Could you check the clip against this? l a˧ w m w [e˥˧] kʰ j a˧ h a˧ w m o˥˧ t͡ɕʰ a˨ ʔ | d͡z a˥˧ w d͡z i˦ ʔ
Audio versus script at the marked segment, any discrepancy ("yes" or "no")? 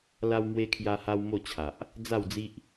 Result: yes